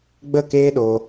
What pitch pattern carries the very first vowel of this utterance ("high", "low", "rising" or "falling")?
falling